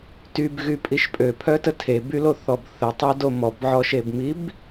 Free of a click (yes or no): yes